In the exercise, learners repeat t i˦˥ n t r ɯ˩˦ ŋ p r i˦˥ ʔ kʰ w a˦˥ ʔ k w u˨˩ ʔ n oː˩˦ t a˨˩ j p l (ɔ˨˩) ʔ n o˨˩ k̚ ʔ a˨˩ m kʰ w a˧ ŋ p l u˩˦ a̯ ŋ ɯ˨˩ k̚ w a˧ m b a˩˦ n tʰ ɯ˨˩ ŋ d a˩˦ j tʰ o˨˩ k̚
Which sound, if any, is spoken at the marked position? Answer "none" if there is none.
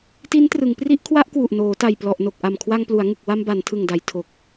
ɔ˨˩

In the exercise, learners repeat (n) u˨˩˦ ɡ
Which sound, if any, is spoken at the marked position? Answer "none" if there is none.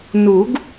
n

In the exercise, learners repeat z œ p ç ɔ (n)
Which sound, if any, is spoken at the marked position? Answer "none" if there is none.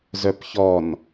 n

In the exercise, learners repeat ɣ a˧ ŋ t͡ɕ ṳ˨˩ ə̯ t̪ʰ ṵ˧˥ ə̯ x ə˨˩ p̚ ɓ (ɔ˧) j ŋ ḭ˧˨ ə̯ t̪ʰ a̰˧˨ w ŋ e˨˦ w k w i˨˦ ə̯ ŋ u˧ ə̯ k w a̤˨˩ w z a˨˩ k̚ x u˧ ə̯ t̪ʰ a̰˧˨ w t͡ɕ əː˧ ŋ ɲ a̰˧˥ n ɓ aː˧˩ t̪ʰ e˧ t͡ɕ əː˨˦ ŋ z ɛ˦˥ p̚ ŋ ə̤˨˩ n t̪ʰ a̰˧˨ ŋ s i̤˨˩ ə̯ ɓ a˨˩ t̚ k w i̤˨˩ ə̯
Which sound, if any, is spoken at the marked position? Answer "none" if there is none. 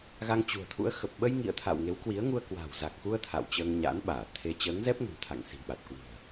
ə˧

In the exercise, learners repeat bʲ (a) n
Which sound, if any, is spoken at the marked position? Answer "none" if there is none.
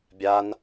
a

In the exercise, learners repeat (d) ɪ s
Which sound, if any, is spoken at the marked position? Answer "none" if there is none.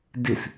d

